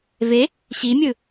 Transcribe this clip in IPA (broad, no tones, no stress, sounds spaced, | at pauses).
v e | ɕ i mʲ ɯ